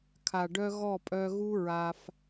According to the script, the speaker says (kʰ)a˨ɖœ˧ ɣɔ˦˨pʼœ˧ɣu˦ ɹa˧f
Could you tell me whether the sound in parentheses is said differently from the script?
no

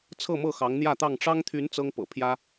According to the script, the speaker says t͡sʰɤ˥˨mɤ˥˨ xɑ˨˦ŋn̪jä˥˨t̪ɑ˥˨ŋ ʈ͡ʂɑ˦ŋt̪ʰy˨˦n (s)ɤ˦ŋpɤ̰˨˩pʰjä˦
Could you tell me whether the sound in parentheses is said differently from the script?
yes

